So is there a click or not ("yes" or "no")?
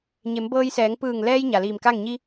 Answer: no